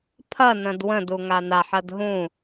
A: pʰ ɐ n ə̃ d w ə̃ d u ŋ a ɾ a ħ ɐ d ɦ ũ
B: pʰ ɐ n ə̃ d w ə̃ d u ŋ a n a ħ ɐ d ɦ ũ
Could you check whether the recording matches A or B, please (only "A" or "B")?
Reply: B